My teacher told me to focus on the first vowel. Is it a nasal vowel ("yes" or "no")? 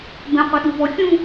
yes